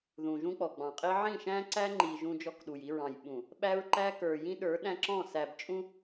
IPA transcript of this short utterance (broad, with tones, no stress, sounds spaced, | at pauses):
ð ũ˨ ʒ ũ˦ k͡p ɔ˨ ɡ͡b ɑ̃˨ qʼ i˦ ʕ ĩ˦˨ ʃ æ̃˦ ǀ æ˦ ŋ͡ǃ i˨ ʒ ũ˦ d͡ʒ ɔ˦ k ɗ u˨ j i˦ ɹ ɑ̃˨ j ɓ ũ˨ | ɓ æ˦ ɹ ǃ æ˦ k ə˞˨ j ĩ˦ ɗ ə˞˨˦ ɗ æ̃˦ ǁ ɔ̃˦˨ s æ˨ b t͡ʃʼ ũ˦